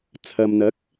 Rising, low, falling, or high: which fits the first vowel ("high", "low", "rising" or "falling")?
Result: low